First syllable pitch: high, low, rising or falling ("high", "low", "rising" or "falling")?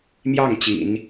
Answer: falling